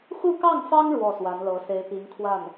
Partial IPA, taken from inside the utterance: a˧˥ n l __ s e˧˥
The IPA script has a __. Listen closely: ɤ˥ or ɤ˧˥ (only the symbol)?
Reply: ɤ˧˥